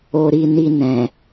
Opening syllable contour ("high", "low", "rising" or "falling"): low